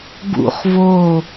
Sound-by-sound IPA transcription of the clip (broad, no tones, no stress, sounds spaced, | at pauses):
ɡ ṵ χ v o